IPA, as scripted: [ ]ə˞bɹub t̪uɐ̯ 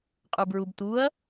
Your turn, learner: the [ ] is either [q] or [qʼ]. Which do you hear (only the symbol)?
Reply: qʼ